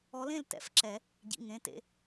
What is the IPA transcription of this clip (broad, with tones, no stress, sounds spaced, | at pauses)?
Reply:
ɔ˧˥ l ẽ˥˧ l t ɛ̰˨˩˦ f ǁ ɛ˨˩˦ | ɟ ḭ˩˧˩ ŋ ẽ˩˧˩ t ḛ˩˧˩